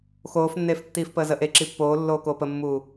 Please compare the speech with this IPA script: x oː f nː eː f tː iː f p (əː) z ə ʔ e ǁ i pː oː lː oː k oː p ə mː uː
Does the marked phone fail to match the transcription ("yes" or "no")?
no